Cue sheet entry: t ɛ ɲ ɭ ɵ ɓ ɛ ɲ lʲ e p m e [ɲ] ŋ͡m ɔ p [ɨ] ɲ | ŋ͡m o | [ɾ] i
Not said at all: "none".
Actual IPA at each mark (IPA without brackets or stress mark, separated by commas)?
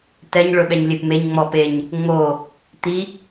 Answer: ɲ, e, t̪